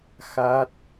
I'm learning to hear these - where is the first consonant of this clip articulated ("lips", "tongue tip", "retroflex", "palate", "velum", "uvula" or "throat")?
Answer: velum